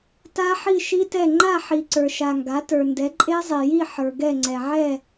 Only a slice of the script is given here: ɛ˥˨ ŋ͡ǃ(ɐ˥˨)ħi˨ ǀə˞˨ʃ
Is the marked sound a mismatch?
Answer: yes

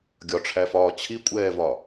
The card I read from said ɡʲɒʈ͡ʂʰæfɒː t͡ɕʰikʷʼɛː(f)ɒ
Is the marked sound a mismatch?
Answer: yes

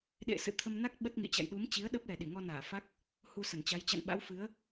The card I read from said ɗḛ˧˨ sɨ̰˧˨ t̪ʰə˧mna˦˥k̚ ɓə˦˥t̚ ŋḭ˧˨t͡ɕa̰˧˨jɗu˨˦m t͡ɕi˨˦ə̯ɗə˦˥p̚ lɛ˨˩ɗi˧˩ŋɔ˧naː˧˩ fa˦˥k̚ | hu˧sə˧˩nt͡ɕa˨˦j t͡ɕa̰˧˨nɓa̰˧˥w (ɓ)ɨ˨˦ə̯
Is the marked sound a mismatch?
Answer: yes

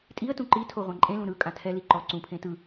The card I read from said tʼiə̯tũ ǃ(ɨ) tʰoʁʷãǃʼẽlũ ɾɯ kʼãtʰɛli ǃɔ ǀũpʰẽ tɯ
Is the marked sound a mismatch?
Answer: yes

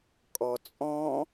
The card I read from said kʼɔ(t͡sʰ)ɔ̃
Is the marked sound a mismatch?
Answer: yes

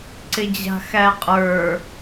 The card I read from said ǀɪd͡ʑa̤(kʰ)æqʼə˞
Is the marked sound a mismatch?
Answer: yes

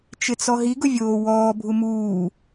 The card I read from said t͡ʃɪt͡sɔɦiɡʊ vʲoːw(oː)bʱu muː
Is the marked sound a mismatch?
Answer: yes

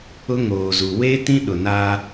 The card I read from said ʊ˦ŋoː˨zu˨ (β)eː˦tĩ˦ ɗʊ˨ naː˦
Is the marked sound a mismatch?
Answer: yes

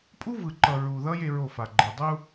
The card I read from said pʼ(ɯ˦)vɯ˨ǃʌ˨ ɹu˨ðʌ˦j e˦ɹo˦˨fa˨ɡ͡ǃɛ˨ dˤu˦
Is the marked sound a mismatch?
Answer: yes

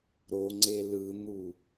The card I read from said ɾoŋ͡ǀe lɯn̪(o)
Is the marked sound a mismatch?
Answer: yes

